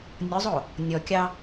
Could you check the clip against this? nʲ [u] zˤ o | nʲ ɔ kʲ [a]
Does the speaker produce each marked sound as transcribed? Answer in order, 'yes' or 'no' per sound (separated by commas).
no, no